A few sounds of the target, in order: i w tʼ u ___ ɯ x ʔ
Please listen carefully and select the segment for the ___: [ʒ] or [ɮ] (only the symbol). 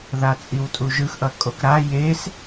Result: ʒ